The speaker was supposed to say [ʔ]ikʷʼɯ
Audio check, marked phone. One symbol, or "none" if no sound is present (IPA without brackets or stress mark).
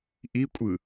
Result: ʔ